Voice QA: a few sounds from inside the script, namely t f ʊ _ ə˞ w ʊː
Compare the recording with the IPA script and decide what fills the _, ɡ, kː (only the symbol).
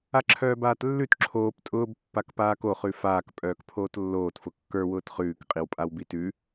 kː